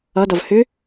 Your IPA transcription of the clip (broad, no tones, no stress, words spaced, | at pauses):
ʌdʌv hʏ